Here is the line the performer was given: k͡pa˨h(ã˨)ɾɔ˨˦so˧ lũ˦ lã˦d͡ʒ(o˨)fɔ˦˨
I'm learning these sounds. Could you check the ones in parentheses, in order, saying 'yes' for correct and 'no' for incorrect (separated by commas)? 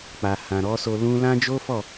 yes, no